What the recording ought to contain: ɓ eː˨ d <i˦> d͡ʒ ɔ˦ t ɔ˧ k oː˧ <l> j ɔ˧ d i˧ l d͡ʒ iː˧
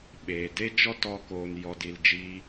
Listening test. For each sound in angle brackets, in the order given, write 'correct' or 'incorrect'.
incorrect: e˦, incorrect: n

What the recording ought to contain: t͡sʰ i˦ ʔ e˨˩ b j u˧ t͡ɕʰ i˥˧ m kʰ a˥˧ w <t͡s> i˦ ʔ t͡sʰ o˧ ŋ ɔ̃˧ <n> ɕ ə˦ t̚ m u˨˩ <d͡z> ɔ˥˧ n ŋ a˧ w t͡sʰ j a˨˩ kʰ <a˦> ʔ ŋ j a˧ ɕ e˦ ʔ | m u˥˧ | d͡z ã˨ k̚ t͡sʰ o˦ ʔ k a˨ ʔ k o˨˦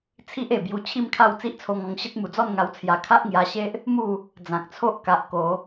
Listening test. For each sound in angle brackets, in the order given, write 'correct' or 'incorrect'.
correct, incorrect: ŋ, correct, correct

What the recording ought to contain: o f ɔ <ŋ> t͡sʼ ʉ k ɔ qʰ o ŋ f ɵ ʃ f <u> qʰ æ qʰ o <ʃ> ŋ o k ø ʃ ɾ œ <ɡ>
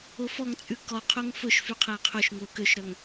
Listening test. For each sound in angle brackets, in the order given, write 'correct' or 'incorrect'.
correct, incorrect: y, correct, incorrect: ŋ

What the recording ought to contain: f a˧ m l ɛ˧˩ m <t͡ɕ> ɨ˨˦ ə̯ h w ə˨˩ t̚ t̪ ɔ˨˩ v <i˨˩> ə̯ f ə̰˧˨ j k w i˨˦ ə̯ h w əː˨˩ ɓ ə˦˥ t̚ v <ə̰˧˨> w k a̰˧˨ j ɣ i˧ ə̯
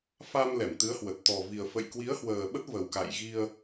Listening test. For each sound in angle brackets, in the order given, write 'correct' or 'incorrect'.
incorrect: t̪, correct, incorrect: ə˨˩

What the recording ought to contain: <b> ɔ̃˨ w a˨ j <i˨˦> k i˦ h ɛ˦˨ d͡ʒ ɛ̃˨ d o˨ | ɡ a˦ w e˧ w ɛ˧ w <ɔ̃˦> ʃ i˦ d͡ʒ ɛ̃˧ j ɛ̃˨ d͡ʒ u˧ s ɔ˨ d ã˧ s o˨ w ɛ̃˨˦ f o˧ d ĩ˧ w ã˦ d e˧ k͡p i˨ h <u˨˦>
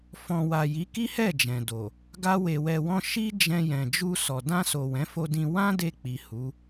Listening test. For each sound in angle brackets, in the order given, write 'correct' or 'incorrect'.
incorrect: f, correct, correct, correct

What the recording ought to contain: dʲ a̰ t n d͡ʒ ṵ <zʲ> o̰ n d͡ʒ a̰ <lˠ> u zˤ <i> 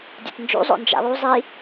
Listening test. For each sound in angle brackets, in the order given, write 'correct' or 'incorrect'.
incorrect: zˤ, correct, correct

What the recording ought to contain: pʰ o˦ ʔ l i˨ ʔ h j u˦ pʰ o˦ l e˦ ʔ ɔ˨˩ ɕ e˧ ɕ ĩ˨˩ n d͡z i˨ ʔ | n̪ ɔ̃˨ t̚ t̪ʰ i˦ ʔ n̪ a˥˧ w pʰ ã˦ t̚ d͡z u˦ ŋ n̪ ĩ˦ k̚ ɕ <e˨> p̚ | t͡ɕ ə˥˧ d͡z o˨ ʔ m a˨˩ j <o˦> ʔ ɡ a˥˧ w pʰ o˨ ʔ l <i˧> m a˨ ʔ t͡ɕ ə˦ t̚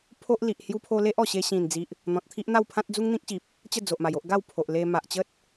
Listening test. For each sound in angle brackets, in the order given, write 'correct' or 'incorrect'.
incorrect: i˨, correct, incorrect: e˧

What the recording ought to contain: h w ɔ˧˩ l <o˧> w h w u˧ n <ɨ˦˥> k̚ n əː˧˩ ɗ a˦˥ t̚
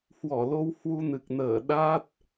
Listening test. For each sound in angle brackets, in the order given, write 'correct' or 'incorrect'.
correct, incorrect: ɨ˨˩

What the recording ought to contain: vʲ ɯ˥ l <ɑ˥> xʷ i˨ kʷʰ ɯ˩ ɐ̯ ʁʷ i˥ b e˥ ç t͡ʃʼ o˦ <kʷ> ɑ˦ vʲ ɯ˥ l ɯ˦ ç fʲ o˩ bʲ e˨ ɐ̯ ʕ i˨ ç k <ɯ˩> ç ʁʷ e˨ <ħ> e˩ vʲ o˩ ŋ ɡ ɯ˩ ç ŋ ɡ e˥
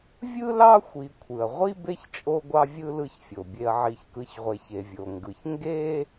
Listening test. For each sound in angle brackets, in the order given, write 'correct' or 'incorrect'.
correct, incorrect: ɡʷ, incorrect: ɯ˨, incorrect: ç

